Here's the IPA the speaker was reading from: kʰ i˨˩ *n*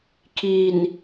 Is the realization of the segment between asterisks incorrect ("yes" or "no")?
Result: no